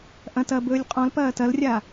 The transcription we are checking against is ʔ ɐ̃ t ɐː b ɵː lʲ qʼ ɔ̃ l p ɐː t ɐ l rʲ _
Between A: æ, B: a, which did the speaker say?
B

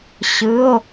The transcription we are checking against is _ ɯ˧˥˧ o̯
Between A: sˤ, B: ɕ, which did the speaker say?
B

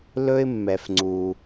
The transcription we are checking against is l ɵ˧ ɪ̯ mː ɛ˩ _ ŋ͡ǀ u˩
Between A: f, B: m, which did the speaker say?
A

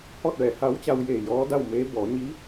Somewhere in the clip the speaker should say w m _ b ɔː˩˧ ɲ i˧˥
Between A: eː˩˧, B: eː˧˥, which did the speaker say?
B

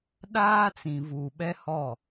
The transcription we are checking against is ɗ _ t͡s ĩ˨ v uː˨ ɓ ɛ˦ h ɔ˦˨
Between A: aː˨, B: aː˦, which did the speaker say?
B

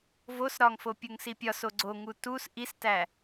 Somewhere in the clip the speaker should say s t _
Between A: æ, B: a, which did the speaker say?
A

